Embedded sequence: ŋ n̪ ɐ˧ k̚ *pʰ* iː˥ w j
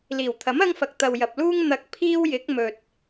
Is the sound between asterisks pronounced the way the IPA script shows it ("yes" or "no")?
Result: yes